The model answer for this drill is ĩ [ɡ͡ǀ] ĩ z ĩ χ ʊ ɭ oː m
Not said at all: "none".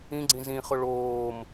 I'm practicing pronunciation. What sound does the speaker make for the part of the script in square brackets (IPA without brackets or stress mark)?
ɡ͡ǀ